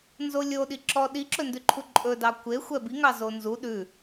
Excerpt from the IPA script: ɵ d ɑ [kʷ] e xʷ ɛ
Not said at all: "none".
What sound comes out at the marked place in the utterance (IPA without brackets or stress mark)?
kʷ